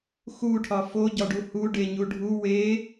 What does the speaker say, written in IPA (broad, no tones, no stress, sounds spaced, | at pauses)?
x u ʈʰ ɒ f o ɟ ɒ ɖ u h u ɖ e ɲ u ɖʱ u w e